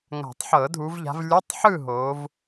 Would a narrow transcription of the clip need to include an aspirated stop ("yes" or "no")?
no